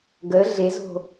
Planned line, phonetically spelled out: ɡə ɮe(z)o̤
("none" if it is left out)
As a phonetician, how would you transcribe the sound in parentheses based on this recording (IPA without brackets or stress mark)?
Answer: z